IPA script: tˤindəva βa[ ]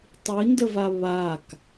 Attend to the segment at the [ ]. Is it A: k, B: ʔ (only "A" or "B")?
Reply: A